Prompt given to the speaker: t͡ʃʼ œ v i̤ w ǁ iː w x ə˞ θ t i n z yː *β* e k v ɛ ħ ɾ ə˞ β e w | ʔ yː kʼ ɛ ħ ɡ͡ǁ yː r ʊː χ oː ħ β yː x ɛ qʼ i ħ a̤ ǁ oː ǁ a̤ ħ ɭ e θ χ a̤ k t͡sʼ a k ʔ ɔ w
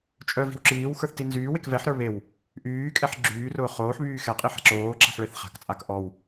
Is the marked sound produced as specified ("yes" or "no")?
no